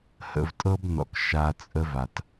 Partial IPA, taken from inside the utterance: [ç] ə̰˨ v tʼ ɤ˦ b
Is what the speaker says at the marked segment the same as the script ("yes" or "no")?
no